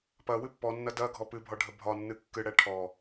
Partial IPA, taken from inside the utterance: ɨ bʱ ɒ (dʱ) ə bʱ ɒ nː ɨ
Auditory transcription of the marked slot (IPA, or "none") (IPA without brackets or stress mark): ɖʱ